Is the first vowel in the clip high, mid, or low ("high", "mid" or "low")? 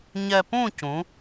mid